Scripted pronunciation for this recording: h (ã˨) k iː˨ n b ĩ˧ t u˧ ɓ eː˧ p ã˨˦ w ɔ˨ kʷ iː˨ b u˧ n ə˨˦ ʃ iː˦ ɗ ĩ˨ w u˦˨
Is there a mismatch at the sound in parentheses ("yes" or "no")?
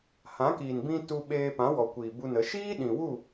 yes